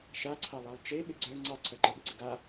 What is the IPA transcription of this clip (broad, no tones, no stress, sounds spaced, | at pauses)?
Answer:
ʃ a ǀʰ ɑ lˠ ɑ lˠ t͡ʃ e ɓ ɪ ɡ͡ǀ œ ŋ͡ǀ ɑ ǀʰ œ ǃ ə ɓ ɪ ǀ ɪ ɡ a